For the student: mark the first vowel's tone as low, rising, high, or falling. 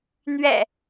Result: low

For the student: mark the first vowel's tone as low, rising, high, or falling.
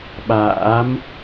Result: rising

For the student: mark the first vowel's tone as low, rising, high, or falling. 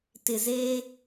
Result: low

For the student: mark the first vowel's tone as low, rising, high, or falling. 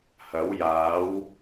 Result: rising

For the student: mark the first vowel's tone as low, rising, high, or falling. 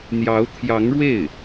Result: rising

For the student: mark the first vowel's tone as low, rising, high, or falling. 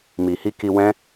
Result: low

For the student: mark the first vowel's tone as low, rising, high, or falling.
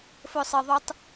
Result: high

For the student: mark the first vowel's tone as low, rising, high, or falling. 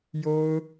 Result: high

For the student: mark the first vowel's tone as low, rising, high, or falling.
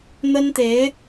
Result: high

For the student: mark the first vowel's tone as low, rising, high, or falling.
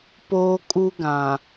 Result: high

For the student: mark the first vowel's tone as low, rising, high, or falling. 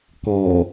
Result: low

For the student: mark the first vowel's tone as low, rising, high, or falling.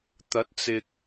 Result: rising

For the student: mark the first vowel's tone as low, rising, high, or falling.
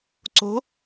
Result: rising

